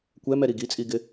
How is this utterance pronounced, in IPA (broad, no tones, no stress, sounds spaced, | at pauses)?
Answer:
kʷ ɛ m ɛ ɾ i ɡ i t͡sʼ i ɡ ɪ